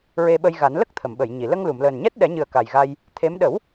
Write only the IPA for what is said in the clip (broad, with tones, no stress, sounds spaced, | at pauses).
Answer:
ɹ e˧ ɓ ə˧ j ɣ a˨˩˦ n l ə˦˥ k̚ t̪ʰ ə˨˩˨ m ɓ ə˨˩˨ j ɲ i˨˩˨ l ə˧ ŋ l u˨˩˨ m l əː˨˩ n ɲ ɛ˦˥ t̚ ɗ ɛ˨˩˦ ɲ ɨ˨˩ ə̯ k a˨˩ j ɣ a˧ j | t̪ʰ e˧˥ m ɗ ə˨˩˦ w